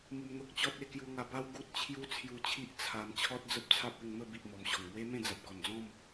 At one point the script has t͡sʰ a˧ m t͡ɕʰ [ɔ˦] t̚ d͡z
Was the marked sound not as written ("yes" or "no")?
no